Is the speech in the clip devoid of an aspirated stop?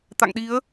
yes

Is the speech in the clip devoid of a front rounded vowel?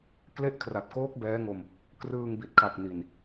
yes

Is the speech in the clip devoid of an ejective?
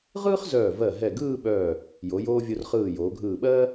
yes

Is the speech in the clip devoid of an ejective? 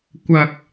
yes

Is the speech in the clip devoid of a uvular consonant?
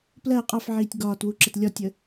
no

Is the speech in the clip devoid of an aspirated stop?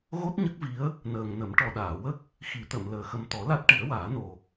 yes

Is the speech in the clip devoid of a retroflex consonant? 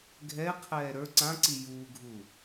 yes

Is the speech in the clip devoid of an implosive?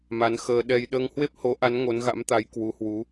no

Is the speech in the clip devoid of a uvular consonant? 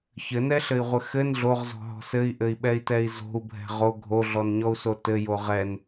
no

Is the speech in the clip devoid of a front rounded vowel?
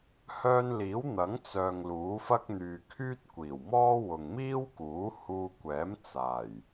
no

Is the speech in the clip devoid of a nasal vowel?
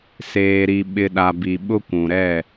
no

